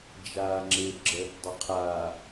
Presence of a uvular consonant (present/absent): present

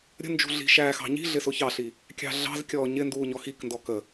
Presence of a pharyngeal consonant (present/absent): absent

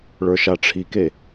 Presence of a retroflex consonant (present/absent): present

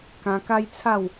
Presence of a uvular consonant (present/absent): absent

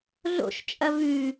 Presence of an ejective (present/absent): present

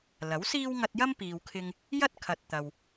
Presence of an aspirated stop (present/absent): present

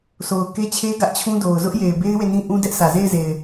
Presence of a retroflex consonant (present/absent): absent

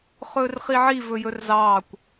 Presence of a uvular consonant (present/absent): present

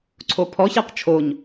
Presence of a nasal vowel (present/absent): absent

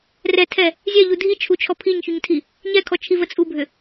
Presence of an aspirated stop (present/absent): present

